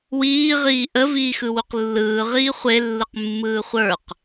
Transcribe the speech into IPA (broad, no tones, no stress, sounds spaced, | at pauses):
w iː ʁ iː ʔ ə v iː x ɯ w u q lː ɯː ʁ iː χʷ e lː ɯ q mː ɯː χʷ ə˞ q